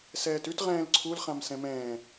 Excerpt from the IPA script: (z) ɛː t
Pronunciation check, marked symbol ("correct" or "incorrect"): incorrect